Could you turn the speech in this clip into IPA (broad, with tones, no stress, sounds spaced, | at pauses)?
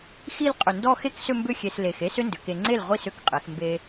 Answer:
x i˥˧ l qʼ ʏ˧˩ n d ɔ˥˧ x e˥ k s ʏ˥˧ m b ʏ˥˧ xʲ e˧ s l e˧˩ x e˥ s ʏ˥ n d ʏ˩˧ k e˧ ŋ͡ǀ e˥˩ l ʁʷ i˥˩ s ʏ˥˩ k qʼ e˩˧ x m b e˧